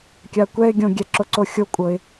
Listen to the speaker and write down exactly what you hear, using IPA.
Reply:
kʲakʷɛɪ̯ ɡʲõ ɡʲɛǁoǀoxʲo kʷʼɤɪ̯

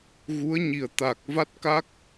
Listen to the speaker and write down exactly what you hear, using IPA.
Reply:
ɣu˧˥ə̯ɲi˨˩ə̯ t̪a˨˩k̚ va˦˥t̚ka˦˥k̚

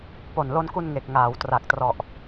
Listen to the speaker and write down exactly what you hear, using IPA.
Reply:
po˨˩nlo˧nku˧n ŋe˨˩k̚ŋaː˩˦wtra˨˩k̚trɔ˨˩ʔ

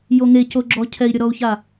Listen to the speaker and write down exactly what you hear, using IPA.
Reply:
joŋecoɡ͡ǁɔ cʰɛi̯ɾʲɔɾɔu̯ça

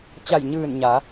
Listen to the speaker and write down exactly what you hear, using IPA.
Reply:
t͡ɕa˧˩jɲɯː˧˩n ɲa˩˧

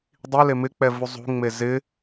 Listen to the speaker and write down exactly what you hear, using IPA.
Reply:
dˤile mɪk͡pɛ vuzˤṳŋ͡me zɪ

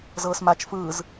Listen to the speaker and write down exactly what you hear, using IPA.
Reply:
zɤːsmat͡ʃ fɯːz

